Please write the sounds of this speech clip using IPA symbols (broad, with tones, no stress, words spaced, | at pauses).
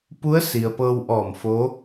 pu˧˥ə̯ si˩ə̯pɤː˧wʔɔː˧˩mfo˧˥